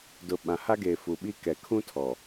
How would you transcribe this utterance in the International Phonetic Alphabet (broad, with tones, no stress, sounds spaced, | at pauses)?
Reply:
d ʊ˨ ɓ ã˨ h a˦ ɡ e˨ f u˨ ɓ i˦ k ɛ˨ kʰ ũ˦ tʰ ɔ˨